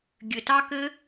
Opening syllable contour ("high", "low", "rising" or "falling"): low